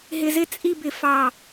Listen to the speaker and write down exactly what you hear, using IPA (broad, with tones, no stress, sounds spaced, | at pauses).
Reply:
ɦ ɪ˧ z ɪ˥˧ t͡sʼ i˥˧ b ɪ˧˩ f ɑ˧˩